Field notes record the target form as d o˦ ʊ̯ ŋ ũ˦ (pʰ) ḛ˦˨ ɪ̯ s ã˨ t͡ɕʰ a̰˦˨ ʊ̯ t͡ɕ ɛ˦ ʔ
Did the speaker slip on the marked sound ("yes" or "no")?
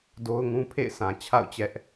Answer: no